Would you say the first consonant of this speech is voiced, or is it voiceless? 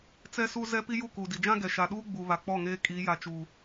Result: voiceless